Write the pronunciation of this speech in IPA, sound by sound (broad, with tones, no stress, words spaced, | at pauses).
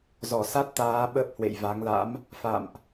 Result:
zɔ˧˩sa˦˥t̚ t̪aː˨˦ ɓə˦˥p̚hwḛ˧˨jva˨˦ŋla̰˧˥m | fa̰˧˨mʔ